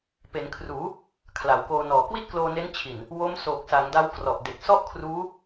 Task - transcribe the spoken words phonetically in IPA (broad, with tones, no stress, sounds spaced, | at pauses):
p e˩˦ n kʰ r uː˩˦ | kʰ l a˩˦ w k oː˧ n ɔː˨˩ k w i˥˩ t̚ k l oː˧ n e˦˥ n t͡ɕʰ i˨˩ n | w o˦˥ m s oː˨˩ k̚ s a˩˦ ŋ d a˦˥ w k r ɔ˨˩ ʔ d e˨˩ k̚ s ɔ˥˩ ʔ kʰ r uː˦˥